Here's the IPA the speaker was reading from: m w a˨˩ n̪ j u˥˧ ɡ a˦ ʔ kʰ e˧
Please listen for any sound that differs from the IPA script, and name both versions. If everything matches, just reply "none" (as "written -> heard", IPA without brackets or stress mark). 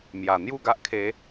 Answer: w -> j